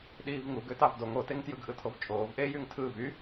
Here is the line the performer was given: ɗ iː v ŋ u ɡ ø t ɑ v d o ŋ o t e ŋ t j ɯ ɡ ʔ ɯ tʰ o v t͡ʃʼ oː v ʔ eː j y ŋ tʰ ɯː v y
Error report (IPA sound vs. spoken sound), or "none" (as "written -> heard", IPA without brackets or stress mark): none